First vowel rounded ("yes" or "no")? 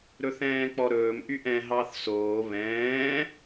yes